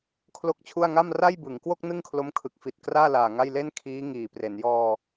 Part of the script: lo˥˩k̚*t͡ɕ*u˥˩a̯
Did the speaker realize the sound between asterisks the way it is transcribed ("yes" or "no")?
no